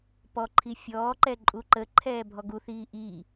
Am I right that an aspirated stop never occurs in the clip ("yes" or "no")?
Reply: no